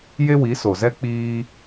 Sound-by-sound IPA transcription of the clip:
j e˦ w i˨˦ s o˨ z ɛ˦ k͡p iː˧

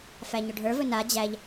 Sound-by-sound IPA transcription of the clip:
f æ ɲ ɵ ɖʱ ə˞ v ɵ n a d͡ʑ æ ʎ

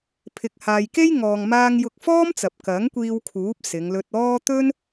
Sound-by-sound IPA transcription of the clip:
pʰ ɪ˨ k̚ h aː˨ j k e˥ j ŋ ɔː˨ ŋ m aː˧ ŋ j ʊ˧ k̚ f ɔː˥ m t͡s ɐ˨ p̚ k ɐ˨˥ ŋ kʷ iː˧ w kʰ uː˨˥ p̚ s ɪ˨˧ ŋ l ɵ˧ t̚ ɔː˥ t̪ ɵ˥ n

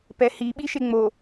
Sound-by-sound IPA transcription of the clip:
p ɛ h i ɓ i ʃ e ŋ͡m o

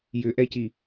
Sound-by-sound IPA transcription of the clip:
j ʏ ʔ ɛ c i

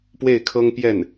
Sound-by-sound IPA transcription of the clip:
p w e˥˩ ɪ̯ kʰ ɤ˥ ŋ p j ɛ˥˩ n

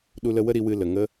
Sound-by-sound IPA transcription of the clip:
ɗ u˧ l ə˧ w ə˦ ɾ i˧ w ɨ˧ l ə˨ ŋ ə˦

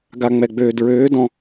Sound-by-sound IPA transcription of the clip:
ɡ a˨ ŋ͡m ɛ˨ ɡ͡b øː˨ d ɹ øː˨˦ d ɔ̃˦

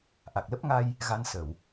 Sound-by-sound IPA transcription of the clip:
ʔ a˨˩ k̚ l ə˦˥ p̚ ŋ a˧ j | ɣ a˧ n s ə˧˩˨ w

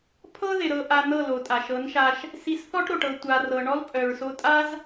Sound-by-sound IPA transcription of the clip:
pʰ ɤ˦ ð ɪ˨ ɾ ɤ˧ ʔ a˧ n̪ ɤ˦˨ l o˨ tʼ a˨ ʃ ɤ˨˦ n ʃ a˧ ʃ | s i˧ s θ ɔ˦ ʈ ɾ o˨ ʈ ɤ˧ tʷ a˨ r ɤ˨ ɳ ɔ˦ l pʼ œ˨ ɹ s o˧ tʼ a˦ z

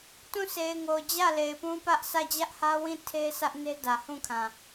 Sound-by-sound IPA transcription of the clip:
t ũ˦˨ sʰ e˨ ɪ̯ ŋ o˨ d͡ʑ ä˦˨ l e˨ ɪ̯ p ũ˦ p ä˦ ʔ s ä˦˨ d͡ʑ ä˦ ʔ h ä˦ w ĩ˦˨ tʰ e˦ sʰ ä˦ ʔ n e˦ d ä˨ h ũ˦˨ kʰ ã˨

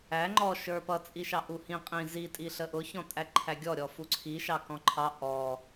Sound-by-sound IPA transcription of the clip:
æ ŋ͡ǃ ɔ ʃ ə˞ p ʌ t͡sʼ i ʃ ɑ ʔ u h ĩ qʼ ĩ z i tʼ i ɬ ə ʔ ʊ ç ɔ̃ tʼ æ ǃʰ æ ɡʲ ɔ ɾʲ ɔ f u ǀʰ i ʃ ɑ k ɔ̃ ǃʰ ɑ ʔ ɔ

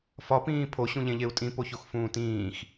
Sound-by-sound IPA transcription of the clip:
f ɒ p ĩː pʰ o ɕ ũ ʎ ẽ ʎ e u̯ tʼ ĩ p o ç o x f ũː t ĩː x

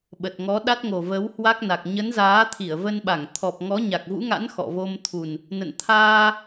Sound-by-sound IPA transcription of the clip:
ɓ ə˨˩ t̚ ŋ ɔ˨˦ ɗ a˦˥ t̚ ŋ o˨˩ v ə˨˦ w h w a˦˥ k̚ n a˨˩ k̚ ɲ ə˨˦ n z aː˨˦ t̪ʰ i˧˩ ə̯ v ə˧ n ɓ a˧˩ ŋ t̪ʰ ɔ˨˩ p̚ ŋ ɔ˨˦ ɲ a˨˩ k̚ v ṵ˧˥ ŋ a̰˧˥ n x ɔ̰˧˨ v o˧ m t̪ʰ u˨˩ n | n ə̰˧˨ n t̪ʰ aː˧

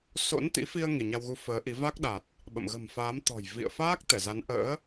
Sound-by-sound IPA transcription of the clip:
s o̰˧˥ n t̪ ḭ˧˥ f i˧ ə̯ ŋ i˧˩ ɲ a˧ w ɣ u˨˦ f əː˨˦ ʔ i˨˦ v a˦˥ k̚ ɗ a˨˩ t̚ | ɓ ə̰˧˨ m ɣ ə̤˨˩ m f aː˨˦ m t̪ ɔ̤˨˩ j v ḭ˧˨ ə̯ f aː˦˥ k̚ t̪ ɛ˧˩ z a˨˦ n ʔ ə̰ː˧˥

